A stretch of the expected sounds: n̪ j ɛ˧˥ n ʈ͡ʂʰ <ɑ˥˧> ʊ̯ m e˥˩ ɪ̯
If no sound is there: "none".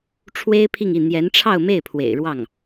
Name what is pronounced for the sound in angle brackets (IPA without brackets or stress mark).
ɑ˥˧